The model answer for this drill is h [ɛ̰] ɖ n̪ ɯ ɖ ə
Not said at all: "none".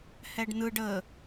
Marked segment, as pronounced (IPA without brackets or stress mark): ɛ